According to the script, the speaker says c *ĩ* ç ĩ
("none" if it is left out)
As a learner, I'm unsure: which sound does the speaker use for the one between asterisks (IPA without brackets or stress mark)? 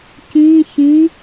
ĩ